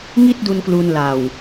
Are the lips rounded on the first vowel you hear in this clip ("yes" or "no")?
no